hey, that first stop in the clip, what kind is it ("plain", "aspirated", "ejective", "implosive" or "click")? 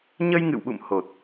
implosive